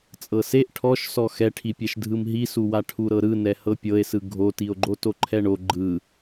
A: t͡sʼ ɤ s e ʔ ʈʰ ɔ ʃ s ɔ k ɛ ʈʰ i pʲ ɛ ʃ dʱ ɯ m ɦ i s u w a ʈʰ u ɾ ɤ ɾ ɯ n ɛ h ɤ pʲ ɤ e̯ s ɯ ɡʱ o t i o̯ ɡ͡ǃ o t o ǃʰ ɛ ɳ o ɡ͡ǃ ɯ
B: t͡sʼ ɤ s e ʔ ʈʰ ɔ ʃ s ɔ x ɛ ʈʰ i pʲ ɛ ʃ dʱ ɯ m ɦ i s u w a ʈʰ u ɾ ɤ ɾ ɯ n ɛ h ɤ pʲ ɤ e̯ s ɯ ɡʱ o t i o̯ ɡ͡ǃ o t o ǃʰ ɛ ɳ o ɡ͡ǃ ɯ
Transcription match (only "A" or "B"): B